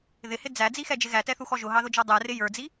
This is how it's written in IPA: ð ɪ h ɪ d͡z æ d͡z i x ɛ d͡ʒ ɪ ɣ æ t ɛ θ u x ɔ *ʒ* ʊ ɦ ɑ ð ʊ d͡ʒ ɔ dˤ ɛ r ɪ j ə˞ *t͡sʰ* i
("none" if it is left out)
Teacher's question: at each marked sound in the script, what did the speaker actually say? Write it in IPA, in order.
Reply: ʒ, d͡z

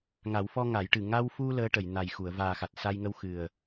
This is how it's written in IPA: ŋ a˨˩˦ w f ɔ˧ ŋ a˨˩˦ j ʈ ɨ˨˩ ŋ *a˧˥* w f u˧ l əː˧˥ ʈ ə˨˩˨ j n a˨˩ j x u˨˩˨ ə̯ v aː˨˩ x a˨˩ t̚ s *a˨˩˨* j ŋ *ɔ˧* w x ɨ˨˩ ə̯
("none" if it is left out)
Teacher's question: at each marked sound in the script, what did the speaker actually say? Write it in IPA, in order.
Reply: a˧, a˧, ə˧

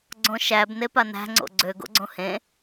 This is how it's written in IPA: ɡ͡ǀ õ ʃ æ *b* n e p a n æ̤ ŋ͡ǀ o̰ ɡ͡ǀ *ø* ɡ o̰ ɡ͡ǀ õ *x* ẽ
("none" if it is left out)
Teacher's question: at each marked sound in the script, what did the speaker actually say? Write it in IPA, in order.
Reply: b, ø, h

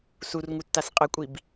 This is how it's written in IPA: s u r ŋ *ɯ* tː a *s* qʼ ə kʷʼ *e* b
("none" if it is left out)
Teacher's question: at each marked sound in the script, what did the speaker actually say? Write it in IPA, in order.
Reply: u, s, i

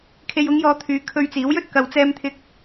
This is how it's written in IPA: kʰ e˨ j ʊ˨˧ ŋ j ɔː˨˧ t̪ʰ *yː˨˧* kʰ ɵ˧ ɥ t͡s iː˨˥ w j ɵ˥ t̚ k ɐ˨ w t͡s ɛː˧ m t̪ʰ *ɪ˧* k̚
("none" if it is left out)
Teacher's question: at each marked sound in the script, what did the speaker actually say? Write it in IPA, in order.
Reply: yː˨˧, ɪ˧

